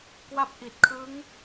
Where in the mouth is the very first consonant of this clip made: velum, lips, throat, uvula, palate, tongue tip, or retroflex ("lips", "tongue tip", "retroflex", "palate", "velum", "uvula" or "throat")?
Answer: velum